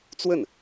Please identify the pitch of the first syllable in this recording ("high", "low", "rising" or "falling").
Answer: falling